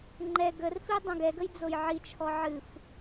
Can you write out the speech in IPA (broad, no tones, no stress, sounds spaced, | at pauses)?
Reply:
ŋ͡ǃ ɛ ɡ ə r f i dˤ õ ɡ ɛ ɡ ə j d͡z o j ʕ i t͡ʃʰ ɔ ʕ ɨ f